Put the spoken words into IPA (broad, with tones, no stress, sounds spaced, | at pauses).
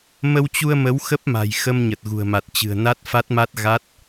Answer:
m ə˧ w t͡ɕ u˧ ə̯ m ə˨˦ w x ə˦˥ p̚ m a̤˨˩ j x ə˧ m ɲ ə˨˩ t̚ ɣ ṳ˨˩ ə̯ m a˨˩ t̚ t͡ɕ ɨ̤˨˩ ə̯ n a˦˥ t̚ f a˦˥ t̚ m a˦˥ t̚ ɣ a˦˥ t̚